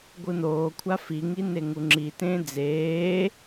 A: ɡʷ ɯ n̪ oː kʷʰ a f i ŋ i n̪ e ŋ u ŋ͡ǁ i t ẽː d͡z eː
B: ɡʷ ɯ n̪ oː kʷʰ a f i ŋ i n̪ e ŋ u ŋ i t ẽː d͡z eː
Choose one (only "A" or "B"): A